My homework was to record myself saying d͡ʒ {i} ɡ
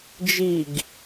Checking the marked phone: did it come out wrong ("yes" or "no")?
no